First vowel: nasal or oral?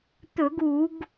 oral